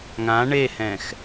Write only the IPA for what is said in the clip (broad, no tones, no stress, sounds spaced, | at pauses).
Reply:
ŋ ã ɳ e h ɛ̃ x